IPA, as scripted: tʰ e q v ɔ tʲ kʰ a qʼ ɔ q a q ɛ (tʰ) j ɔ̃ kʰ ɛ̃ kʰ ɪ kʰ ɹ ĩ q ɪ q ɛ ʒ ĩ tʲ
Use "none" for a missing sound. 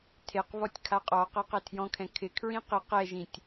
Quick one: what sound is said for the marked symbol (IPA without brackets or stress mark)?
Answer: tʰ